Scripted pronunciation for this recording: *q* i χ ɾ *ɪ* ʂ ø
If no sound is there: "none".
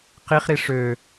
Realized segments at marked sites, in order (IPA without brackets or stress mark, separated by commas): q, i